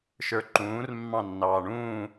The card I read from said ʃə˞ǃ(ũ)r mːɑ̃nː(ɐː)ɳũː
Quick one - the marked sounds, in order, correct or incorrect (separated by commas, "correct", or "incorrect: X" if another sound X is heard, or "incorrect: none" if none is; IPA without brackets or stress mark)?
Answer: incorrect: ũː, incorrect: ɑː